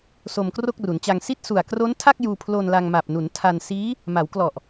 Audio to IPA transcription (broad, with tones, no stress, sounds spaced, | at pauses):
s o˧ m k r o˥˩ k̚ r u˩˦ n t͡ɕ a˧ ŋ s i˥˩ t̚ s u˨˩ a̯ k r o˦˥ n tʰ a˥˩ k̚ j uː˧ pʰ l o˧ n l a˧ ŋ m a˨˩ p̚ n u˩˦ n tʰ a˧ n s iː˦˥ | m a˩˦ w k l ɔ˨˩ ʔ